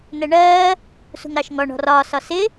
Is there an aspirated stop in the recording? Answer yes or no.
no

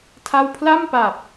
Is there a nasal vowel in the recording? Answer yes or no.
no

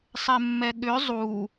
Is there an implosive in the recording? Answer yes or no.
yes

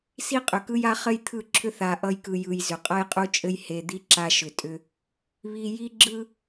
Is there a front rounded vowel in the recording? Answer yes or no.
yes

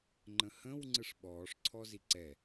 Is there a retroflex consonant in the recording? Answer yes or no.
yes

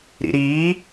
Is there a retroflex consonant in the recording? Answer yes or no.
no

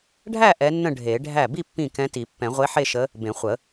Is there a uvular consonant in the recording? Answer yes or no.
yes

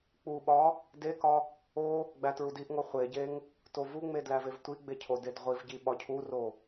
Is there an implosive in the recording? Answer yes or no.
yes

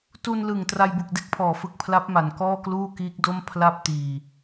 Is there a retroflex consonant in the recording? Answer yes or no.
no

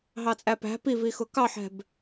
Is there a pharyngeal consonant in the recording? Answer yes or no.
yes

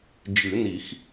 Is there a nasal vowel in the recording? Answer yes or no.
no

